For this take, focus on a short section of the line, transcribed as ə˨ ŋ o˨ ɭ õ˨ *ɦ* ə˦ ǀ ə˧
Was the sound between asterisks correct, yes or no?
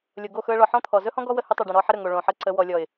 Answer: no